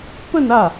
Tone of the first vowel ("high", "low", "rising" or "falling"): falling